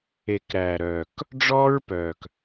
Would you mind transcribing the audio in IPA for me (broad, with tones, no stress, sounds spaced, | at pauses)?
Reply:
e˨ k ɾ æː˨ ɾ œː˨ k | ɖ͡ʐ ɔː˦ ɹ p œː˨ k